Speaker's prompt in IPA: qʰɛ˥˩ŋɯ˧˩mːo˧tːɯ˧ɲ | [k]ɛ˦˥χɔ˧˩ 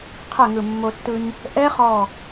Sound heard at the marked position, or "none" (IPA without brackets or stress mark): ʔ